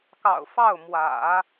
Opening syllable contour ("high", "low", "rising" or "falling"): low